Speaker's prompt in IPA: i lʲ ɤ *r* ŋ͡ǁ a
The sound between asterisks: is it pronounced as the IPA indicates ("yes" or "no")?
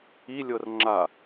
yes